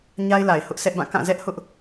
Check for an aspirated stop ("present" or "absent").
absent